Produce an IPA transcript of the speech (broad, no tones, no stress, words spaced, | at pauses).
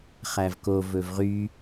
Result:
χævko vɵvʁy